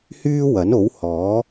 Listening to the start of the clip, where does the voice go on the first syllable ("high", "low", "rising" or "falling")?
high